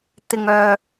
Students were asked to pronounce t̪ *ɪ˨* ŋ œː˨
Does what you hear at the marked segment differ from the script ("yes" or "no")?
no